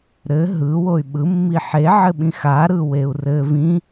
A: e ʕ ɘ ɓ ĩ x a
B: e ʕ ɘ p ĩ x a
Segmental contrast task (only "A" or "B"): A